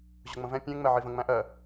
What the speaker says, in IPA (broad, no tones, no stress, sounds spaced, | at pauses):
ʑ ʊ ŋ͡m ə̃ v ɛ̃ pʲ ɛ̃ ŋ͡m ɛ ʕ i v ə̃ ŋ͡m æ̃ ʔ ɜ